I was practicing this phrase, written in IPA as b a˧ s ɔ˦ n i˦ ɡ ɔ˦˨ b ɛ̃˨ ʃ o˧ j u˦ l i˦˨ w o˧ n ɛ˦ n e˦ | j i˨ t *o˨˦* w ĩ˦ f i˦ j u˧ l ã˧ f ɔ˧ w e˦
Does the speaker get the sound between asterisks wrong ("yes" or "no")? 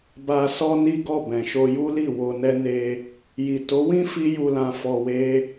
no